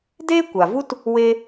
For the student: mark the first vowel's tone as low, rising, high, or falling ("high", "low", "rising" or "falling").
high